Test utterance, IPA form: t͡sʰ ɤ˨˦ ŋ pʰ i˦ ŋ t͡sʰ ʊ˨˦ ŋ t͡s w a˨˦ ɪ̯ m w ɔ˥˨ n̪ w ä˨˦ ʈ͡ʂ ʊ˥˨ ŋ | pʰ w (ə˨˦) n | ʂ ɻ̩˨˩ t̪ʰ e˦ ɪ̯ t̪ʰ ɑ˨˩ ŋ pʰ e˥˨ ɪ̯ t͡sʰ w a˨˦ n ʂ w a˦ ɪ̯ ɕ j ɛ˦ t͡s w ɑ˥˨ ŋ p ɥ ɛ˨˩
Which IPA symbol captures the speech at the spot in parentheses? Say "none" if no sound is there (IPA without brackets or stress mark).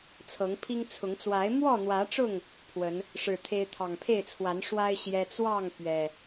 ə˨˦